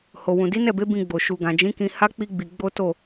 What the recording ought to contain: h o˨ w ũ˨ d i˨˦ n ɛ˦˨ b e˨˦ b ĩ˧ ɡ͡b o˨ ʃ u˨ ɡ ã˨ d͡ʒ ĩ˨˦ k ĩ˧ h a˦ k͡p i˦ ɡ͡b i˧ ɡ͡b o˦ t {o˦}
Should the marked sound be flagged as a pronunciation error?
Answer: yes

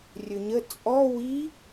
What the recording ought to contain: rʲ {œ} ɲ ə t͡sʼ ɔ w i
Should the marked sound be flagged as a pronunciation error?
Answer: yes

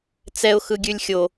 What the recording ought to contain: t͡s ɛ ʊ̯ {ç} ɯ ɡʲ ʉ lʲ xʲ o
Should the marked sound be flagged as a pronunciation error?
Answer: yes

